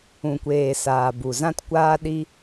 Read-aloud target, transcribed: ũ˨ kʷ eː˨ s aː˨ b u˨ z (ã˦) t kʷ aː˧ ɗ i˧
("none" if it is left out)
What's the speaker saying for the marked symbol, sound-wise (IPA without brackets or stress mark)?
ã˦